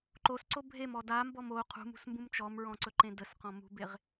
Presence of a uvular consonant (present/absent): present